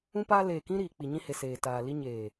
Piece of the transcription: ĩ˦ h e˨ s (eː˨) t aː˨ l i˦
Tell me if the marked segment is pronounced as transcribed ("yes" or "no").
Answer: yes